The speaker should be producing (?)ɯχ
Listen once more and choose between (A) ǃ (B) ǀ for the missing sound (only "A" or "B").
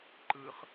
A